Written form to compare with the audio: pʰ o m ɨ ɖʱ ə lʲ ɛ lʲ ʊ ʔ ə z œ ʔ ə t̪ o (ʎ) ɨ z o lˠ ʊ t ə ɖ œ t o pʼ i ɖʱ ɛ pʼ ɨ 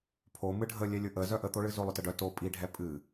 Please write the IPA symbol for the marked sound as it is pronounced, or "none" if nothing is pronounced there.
ɭ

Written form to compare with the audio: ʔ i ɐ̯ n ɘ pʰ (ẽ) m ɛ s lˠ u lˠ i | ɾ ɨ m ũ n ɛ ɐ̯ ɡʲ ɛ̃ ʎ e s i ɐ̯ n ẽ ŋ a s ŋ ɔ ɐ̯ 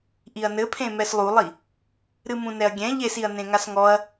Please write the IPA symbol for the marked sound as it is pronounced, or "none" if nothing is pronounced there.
ẽ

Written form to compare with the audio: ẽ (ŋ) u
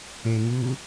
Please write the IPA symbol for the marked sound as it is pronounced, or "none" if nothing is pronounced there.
ŋ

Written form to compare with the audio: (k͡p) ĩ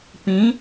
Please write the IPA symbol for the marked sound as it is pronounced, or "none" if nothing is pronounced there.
p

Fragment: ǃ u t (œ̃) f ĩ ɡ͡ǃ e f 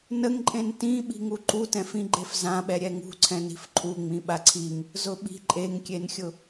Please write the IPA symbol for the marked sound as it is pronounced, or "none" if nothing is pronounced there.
ɛ̃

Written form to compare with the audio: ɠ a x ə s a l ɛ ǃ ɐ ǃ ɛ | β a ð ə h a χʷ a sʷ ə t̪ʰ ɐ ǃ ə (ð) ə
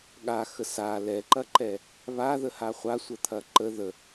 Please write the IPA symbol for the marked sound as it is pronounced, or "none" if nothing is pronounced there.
ð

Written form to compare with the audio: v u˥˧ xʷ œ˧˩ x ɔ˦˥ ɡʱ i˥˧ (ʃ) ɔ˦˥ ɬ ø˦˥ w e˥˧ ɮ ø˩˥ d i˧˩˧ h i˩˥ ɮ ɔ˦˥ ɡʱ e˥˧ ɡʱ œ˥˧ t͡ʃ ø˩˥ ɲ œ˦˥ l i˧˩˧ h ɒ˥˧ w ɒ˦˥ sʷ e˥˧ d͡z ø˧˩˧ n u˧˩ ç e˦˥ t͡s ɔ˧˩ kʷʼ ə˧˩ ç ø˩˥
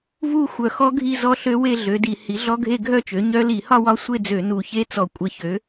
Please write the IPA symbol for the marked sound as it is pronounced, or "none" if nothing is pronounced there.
z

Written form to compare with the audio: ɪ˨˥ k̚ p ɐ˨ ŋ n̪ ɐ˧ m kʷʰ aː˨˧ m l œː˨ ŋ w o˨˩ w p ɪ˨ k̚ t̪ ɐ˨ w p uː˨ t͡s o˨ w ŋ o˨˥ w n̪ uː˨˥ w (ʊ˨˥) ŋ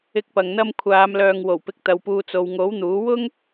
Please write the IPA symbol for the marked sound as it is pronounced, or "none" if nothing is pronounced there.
ʊ˥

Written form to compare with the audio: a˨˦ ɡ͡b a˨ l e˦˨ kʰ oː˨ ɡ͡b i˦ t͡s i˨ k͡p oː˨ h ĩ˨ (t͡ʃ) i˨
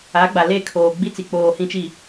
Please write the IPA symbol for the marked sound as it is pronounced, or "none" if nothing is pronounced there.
t͡ʃ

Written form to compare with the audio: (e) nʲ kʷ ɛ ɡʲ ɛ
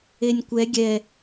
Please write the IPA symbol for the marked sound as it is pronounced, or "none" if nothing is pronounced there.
e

